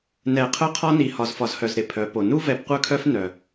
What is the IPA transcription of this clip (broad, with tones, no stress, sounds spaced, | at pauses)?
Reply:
n ɛ˨ qʰ œ˦ qʰ ɒ˦ n i˨ h ɒ˨ z f ɒ˨ z h œ˨ z ɾ ɪ˨ pʰ œ˨˦ p o˨ n u˦ v ɛ˨ p qʷ œ˦˨ kʰ œ˦ f n œ˨